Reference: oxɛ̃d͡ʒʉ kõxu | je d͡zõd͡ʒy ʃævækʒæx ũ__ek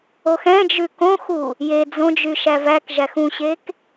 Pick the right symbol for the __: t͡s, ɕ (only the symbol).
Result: ɕ